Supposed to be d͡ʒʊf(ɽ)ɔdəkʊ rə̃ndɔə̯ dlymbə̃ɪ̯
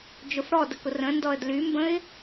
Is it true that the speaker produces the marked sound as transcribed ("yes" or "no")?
yes